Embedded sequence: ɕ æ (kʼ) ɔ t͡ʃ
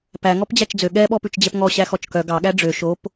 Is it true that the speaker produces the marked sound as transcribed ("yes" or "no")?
no